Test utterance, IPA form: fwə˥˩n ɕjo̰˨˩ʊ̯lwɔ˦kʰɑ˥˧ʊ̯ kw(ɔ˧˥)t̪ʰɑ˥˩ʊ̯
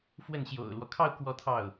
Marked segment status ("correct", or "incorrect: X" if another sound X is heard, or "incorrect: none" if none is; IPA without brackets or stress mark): incorrect: ɔ˥˧